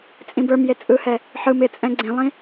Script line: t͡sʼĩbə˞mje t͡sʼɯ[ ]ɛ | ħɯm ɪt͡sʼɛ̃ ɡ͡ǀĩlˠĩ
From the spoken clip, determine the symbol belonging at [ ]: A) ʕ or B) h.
B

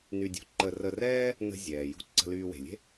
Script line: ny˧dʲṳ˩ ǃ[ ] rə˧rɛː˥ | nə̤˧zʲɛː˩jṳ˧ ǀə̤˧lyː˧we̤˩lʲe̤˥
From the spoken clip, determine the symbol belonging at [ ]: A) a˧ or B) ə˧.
B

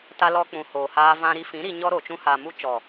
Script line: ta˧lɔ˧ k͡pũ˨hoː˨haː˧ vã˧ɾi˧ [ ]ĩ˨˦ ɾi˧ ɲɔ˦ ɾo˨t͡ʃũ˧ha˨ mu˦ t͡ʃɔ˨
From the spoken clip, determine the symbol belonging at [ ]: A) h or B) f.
B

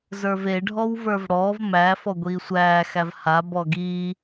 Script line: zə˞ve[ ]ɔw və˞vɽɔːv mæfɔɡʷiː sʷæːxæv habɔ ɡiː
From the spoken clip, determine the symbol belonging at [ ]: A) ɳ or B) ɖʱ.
B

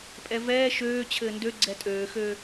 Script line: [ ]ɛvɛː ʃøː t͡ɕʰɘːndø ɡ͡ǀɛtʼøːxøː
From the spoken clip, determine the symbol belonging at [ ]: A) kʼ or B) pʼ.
B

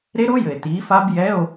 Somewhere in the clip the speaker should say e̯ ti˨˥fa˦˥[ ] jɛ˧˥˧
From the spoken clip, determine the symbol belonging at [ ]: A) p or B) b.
B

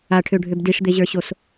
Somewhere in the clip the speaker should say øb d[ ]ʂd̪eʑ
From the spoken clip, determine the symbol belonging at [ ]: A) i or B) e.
A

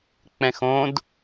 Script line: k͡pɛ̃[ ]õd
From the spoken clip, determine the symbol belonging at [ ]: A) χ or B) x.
B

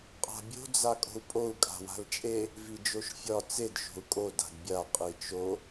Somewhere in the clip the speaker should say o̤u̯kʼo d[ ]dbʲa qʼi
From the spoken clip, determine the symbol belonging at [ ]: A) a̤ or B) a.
A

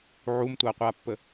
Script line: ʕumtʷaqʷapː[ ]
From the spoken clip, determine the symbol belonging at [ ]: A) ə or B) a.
A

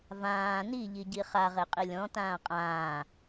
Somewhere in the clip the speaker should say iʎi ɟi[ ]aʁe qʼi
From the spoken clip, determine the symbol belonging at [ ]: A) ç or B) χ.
B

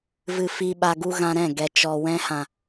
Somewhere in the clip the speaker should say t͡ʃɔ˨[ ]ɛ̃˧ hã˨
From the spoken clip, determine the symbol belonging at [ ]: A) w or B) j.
A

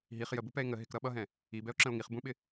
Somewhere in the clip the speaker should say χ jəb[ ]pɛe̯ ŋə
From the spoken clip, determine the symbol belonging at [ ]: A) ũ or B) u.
B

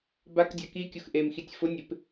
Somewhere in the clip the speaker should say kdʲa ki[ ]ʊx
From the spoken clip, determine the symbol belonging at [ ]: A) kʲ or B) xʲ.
A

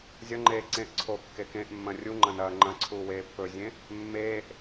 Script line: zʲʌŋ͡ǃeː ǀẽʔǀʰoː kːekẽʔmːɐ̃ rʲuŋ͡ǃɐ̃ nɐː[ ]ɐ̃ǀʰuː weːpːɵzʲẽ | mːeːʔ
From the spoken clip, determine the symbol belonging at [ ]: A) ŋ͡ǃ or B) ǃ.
A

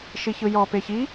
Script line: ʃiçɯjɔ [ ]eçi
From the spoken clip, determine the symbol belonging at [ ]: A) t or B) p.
B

